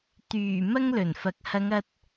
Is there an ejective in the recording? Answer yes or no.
no